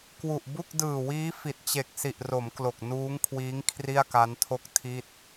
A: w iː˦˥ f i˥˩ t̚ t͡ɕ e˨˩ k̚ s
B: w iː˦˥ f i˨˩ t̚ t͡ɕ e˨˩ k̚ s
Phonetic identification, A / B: B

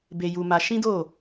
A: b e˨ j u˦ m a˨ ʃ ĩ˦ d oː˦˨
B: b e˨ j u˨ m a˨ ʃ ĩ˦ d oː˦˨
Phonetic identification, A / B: B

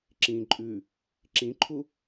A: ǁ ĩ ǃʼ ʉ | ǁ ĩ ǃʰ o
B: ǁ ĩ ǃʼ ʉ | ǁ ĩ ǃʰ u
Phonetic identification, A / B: B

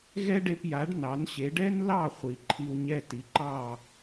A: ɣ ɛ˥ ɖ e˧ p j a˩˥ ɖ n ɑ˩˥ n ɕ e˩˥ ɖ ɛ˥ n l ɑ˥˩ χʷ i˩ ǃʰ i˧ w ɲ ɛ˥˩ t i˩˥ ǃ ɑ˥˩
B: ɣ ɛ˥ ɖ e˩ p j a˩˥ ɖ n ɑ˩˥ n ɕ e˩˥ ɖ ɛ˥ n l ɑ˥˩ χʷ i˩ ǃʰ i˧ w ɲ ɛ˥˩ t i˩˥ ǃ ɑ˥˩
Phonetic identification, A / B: A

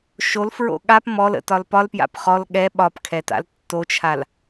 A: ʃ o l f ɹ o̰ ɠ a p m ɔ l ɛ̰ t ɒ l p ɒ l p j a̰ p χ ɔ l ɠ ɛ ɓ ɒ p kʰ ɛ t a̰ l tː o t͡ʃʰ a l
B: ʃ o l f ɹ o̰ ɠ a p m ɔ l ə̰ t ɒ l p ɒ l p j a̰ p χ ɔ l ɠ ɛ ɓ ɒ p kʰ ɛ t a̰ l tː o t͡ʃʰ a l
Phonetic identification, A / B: B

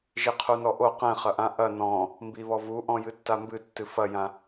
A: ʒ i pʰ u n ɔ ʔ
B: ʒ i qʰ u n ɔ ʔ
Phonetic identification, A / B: B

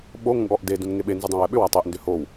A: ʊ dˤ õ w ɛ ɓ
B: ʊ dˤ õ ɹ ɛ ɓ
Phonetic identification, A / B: A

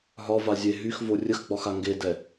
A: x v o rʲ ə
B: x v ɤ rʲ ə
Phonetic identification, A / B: A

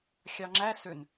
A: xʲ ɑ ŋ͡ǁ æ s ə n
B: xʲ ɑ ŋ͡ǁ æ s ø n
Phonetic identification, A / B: B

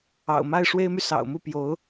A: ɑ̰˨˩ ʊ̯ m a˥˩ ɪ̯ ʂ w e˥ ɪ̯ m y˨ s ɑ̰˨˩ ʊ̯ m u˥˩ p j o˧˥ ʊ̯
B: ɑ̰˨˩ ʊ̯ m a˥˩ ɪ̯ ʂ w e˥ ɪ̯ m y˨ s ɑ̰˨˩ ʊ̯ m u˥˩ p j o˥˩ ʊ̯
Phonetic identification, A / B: A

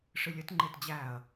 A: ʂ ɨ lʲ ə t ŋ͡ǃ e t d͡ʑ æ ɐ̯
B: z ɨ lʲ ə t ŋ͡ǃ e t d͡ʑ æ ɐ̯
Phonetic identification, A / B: A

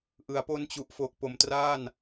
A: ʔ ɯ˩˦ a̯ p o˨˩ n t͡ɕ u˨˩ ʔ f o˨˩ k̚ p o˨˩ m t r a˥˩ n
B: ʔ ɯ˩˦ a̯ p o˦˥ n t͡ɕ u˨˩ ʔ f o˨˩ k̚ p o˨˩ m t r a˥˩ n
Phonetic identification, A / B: B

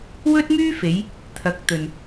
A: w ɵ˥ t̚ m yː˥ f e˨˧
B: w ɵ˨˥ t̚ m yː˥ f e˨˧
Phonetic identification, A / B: A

